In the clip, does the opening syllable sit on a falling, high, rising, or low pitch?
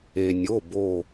low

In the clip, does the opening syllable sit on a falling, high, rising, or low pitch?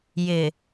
low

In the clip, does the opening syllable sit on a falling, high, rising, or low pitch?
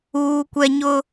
high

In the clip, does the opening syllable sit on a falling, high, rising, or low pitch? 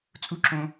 high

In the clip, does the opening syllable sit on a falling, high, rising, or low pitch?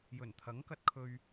low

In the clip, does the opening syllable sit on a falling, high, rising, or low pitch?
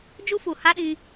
high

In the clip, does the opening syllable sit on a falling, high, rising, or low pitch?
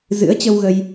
rising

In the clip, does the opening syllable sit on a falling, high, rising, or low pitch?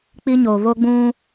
high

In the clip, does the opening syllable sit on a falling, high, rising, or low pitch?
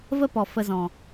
high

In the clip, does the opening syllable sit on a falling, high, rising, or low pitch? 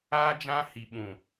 high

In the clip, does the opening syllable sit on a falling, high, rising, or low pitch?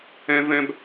high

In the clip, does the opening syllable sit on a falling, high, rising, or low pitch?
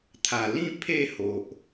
low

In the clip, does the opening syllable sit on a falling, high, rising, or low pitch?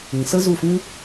low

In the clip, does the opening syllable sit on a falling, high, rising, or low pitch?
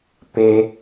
high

